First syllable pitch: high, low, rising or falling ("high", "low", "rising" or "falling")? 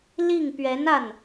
falling